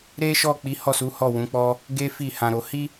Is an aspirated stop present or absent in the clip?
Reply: absent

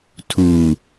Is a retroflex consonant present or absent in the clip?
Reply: absent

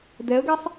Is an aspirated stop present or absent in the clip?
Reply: absent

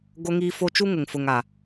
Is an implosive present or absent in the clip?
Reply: absent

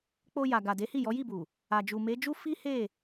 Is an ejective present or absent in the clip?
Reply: absent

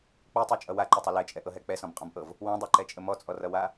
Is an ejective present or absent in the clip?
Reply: present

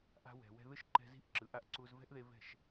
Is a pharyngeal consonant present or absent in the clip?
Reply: absent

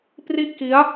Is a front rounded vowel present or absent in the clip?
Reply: absent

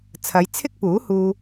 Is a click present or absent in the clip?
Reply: absent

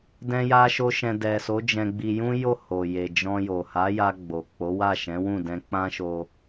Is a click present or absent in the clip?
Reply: absent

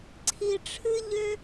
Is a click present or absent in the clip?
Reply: present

